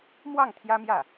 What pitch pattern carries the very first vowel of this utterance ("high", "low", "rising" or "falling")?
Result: falling